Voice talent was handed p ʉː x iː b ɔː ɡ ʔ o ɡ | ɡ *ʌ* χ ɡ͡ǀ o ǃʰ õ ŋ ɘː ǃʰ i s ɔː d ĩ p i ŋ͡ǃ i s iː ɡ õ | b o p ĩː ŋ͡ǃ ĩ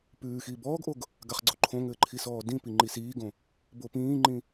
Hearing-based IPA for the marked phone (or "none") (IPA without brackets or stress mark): a